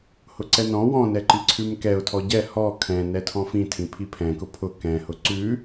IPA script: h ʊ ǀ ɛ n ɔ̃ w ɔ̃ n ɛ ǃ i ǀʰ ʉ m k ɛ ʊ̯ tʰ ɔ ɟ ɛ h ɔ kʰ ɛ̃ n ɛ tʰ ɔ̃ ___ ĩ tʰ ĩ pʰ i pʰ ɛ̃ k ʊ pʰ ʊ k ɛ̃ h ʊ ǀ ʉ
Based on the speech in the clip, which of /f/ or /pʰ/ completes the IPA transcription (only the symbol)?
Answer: f